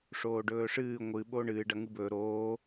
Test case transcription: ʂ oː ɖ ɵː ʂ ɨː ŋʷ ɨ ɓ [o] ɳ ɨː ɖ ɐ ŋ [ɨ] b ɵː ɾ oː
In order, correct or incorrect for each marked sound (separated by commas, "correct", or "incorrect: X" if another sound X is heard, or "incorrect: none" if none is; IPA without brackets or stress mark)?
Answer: correct, correct